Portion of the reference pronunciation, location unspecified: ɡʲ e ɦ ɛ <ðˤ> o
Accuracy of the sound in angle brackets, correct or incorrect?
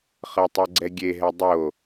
incorrect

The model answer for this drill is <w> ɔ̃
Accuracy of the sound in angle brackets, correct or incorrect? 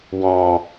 correct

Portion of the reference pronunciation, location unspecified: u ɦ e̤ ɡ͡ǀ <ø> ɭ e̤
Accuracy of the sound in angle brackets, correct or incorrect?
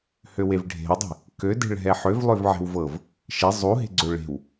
correct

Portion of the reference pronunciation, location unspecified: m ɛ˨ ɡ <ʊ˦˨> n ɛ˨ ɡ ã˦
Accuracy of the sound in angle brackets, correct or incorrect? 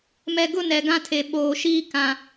correct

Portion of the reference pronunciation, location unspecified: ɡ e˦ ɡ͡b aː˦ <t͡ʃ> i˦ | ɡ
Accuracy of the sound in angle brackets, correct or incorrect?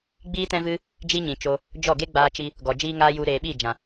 correct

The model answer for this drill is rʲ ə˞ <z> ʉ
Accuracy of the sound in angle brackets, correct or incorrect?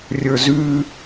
correct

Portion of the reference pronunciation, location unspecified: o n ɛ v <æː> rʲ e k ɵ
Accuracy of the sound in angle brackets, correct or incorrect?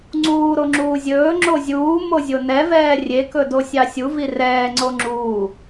incorrect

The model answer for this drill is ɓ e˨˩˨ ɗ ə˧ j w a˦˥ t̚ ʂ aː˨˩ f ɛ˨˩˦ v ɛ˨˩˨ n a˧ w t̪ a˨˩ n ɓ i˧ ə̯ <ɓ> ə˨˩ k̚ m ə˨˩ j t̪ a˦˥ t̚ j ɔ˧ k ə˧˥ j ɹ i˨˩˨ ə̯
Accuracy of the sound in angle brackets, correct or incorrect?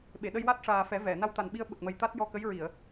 correct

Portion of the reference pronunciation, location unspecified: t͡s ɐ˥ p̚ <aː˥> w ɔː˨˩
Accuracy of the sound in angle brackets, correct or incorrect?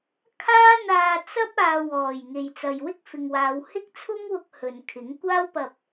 incorrect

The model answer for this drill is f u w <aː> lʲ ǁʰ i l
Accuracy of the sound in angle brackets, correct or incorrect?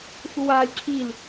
correct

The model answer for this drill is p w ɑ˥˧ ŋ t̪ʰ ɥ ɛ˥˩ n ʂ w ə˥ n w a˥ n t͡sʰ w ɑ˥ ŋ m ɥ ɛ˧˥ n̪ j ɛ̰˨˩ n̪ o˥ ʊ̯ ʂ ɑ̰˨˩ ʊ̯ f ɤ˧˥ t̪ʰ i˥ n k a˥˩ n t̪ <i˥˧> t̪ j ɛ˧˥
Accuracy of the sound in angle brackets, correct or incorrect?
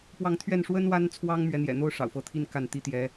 incorrect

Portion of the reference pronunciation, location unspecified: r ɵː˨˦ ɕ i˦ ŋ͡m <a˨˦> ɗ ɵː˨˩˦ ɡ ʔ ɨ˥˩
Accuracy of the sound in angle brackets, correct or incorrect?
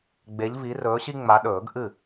correct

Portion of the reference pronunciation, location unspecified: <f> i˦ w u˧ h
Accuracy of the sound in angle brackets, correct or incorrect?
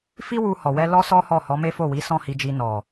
correct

